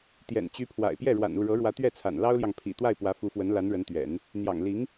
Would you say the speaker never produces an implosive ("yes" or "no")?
yes